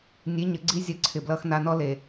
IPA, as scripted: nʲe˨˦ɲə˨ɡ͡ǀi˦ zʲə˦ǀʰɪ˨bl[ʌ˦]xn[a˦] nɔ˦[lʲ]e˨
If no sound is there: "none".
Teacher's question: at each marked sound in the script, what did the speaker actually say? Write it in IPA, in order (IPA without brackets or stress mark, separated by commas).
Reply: ʌ˦, a˦, l